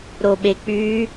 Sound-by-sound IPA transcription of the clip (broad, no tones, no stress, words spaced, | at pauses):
ɾoɓek͡py